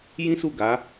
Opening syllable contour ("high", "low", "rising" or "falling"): high